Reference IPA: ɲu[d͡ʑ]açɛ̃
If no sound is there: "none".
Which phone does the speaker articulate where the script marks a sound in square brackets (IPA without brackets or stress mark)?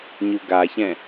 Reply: ɡ